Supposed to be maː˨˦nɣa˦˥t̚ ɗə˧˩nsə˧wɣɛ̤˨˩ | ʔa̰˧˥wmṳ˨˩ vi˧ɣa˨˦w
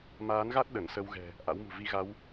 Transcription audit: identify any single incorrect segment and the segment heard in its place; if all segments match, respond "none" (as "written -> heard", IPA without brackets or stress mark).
none